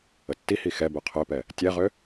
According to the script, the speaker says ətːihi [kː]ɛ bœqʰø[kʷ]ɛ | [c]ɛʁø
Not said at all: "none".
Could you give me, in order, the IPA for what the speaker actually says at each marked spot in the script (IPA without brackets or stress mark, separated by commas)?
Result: x, p, tʲ